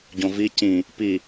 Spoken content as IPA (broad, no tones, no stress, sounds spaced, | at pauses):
ɟ õ v i c ĩ | p i